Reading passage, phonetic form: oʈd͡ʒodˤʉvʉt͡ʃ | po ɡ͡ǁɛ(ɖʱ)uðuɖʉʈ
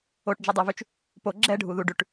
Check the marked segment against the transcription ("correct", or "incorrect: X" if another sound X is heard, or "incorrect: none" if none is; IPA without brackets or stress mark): correct